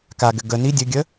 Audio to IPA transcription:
k a ɡ ɘ ɡ ə n i dʲ ɘ ɡʲ ə

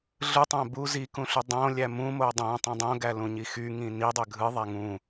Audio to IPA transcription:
ɮ ɯ tˤ æ̃ b u z i k ũ ɬ y dˤ õ lʲ æ m ũ m o dˤ õ tˤ ĩ dˤ õ ɡ æ l ũ ɲ i x y ŋ ĩ n i dˤ ø ɡʱ ɯ ðˤ æ ŋ ũ

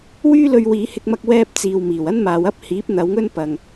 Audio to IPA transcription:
w yː˥ l ɵ˧ ɥ w iː˨˧ h ɪ˧ k̚ m ɐ˥ k̚ w ɛː˥ p̚ t͡s iː˨ w m iː˨˩ w ɐ˥ n m aː˨ w ɐ˥ p̚ h iː˨˥ p̚ n̪ ɐ˨˧ w ŋ ɵ˥ n p ɐ˨ ŋ

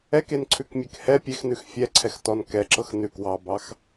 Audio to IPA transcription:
ɛ k e n ǀʰ ʉ k mʲ e k h ɛ pʲ e x n ʉ x fʲ ɛ ǀʰ ɛ x t ɔ n k ɛ ǁ ɤ x n ʉ k w ɑ b ɑ x

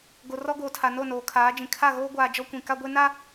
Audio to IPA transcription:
ɡ o˨ r ɔ˦ ɡ oː˨ tʰ a˨ n o˦˨ n oː˨ kʰ aː˨˦ d͡ʒ ĩ˨ kʰ a˦˨ ɣ oː˦ ɡʷ aː˨ d͡ʒ ɔ˦ kʷ ĩ˨ k a˦ ɡʷ e˦ n a˦

